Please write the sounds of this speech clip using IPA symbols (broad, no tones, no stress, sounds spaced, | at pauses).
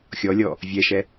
xʲ ɔ lʲ ɔ | vʲ ɛ ʃ ɛ